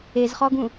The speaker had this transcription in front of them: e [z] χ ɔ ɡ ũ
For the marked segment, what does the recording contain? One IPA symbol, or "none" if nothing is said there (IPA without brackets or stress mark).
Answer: z